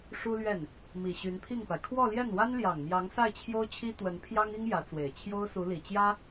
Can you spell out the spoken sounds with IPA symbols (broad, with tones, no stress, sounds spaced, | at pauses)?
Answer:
ʂ u˥ l ɥ ɛ˥˩ n | m i˨˩ ɕ y˧˥ n pʰ i˥˩ ŋ p a˩ ɪ̯ kʰ w ɔ˥˧ l j ɛ˥˩ n w a˥ n l j ɑ˨˩ ŋ m j ɑ˧˥ ŋ s a˥˩ ɪ̯ t͡ɕʰ j o˥ ʊ̯ t͡ɕʰ i˥ t̪ w ə˧˥ n pʰ j ɑ˥ ŋ i˥ ŋ j ä˧˥ t͡s w e˨˩ ɪ̯ t͡ɕʰ j o˥ ʊ̯ s u˧˥ l i˨˩ t͡ɕ j ä˥